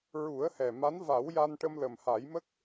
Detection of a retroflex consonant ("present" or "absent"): present